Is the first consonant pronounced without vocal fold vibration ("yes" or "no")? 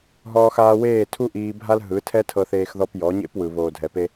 no